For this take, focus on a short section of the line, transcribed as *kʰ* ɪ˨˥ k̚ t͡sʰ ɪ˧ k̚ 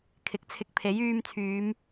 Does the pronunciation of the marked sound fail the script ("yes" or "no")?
no